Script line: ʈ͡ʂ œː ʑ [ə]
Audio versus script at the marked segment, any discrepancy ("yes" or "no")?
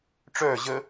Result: no